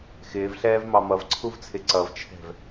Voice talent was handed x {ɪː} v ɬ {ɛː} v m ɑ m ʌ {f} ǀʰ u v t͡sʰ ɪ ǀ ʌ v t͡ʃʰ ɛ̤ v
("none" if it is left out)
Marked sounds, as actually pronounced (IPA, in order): ɪː, ɛː, v

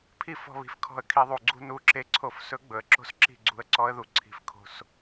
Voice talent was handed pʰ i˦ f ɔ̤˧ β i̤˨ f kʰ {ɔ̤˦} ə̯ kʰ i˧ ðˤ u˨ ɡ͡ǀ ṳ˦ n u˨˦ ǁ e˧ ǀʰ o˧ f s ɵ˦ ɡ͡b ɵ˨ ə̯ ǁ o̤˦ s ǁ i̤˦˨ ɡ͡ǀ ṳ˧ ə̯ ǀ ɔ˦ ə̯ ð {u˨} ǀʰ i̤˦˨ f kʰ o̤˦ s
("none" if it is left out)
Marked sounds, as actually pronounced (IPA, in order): ɔ̤˧, u˨

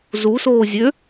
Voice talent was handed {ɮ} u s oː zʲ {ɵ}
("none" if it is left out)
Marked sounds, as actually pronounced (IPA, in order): z, ø

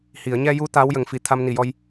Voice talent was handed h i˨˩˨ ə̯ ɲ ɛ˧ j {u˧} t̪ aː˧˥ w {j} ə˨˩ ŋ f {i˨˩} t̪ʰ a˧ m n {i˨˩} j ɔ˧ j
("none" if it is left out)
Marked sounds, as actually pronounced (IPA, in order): u˧˥, j, i˨˩, i˨˩

